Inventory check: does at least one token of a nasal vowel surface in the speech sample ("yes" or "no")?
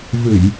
no